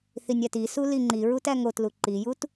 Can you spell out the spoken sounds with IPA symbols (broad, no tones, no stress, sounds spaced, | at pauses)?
θ i nʲ æ t i s u l i ŋ͡ǃ i ɹ u t æ ŋ o t l u ǃ i j u t